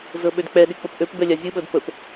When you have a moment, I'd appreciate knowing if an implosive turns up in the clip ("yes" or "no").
yes